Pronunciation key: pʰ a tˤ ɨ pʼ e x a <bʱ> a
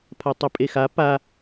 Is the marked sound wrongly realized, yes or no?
yes